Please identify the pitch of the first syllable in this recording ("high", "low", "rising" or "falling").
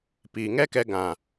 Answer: low